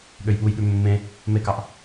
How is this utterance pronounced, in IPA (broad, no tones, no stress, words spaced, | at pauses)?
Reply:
ɠøjɓujɠʉ mːẽ | mekɑʔ